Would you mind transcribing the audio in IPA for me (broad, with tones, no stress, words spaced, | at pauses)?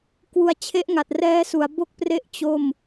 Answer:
kwu˧a̯t͡ɕʰe˦˥ʔŋa˨˩t̚rɛː˦˥ su˩˦a̯ bo˥˩k̚pre˥˩ʔ t͡ɕo˥˩m